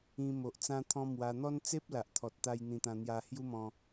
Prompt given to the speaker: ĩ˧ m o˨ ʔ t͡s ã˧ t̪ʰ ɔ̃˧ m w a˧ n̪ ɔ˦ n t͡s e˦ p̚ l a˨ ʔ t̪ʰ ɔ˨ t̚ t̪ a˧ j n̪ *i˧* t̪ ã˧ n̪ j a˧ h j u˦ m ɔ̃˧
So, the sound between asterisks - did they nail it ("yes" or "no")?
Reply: no